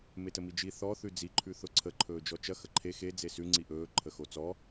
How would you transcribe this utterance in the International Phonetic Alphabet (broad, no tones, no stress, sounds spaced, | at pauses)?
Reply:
m e t ə m i d͡ʒ i θ ɔ θ ʉ d͡z i ǃʰ ʉ θ ʊ ǀʰ ə ǃʰ ɵː d͡ʒ ɔ t͡ʃ ɐ x ə ǃʰ e x e d͡z e s ʉ ŋ͡ǀ i ʔ ɵː ǃʰ ə x o t͡s ɔ